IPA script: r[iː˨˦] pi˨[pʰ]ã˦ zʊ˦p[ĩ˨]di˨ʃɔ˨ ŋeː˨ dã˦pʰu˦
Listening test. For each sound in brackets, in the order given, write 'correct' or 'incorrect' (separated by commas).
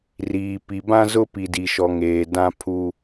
incorrect, incorrect, incorrect